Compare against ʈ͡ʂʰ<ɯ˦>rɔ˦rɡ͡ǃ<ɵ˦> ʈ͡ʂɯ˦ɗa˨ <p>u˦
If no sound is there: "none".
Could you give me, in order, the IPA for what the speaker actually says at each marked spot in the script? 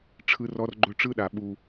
ɯ˦, ɵ˦, ɓ

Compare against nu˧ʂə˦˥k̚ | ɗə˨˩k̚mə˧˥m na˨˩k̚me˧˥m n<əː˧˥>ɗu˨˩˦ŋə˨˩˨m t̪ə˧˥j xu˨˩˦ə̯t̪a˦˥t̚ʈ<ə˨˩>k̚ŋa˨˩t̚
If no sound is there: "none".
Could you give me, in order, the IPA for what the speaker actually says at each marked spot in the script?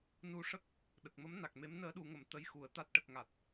əː˧˥, ə˨˩

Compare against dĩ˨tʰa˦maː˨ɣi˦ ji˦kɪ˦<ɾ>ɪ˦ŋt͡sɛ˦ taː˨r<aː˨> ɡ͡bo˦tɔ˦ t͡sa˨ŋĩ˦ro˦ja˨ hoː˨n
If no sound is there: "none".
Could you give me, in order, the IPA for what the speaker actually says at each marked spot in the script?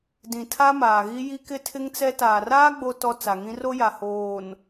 tʰ, aː˦

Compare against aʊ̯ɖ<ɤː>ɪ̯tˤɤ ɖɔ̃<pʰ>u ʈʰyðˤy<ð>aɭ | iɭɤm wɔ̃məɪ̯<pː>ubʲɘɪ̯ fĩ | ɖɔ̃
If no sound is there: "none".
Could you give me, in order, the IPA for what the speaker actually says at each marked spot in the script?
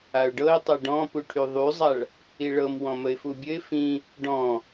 ɤ, p, zˤ, f

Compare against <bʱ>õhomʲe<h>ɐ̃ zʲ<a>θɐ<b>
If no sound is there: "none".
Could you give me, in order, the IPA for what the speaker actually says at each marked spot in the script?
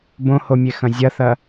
b, x, ɐ, none

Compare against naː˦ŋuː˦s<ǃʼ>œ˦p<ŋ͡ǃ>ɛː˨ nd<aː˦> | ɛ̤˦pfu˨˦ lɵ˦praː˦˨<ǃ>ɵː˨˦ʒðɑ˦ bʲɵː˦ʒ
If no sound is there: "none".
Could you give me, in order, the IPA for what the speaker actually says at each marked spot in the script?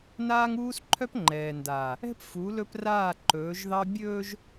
ǃʰ, ŋ͡ǃ, aː˨, ǃ

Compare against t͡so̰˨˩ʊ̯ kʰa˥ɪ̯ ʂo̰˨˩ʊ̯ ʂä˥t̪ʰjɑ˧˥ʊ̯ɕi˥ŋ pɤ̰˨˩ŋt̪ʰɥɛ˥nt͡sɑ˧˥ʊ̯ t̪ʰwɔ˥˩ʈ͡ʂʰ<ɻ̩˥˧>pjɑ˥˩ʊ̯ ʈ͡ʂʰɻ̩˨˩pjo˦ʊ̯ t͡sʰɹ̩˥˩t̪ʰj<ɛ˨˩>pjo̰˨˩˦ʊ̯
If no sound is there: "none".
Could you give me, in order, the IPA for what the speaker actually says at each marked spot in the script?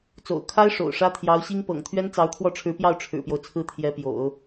ɻ̩˧˥, ɛ˧˥

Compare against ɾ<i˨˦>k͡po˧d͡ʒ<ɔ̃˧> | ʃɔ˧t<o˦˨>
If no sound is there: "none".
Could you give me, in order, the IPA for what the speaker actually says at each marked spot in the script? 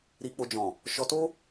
i˧, ɔ̃˨, o˦

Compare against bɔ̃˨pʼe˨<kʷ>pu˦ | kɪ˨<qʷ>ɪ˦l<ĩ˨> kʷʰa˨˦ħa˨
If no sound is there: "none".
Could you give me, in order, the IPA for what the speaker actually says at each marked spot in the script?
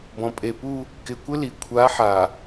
none, kʷ, i˨

